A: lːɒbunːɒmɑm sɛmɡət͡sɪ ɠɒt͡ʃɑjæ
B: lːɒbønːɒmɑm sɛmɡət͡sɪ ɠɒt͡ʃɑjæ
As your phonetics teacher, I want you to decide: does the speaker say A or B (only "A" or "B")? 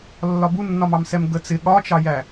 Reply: A